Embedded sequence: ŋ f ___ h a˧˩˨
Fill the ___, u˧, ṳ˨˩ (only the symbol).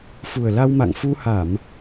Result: u˧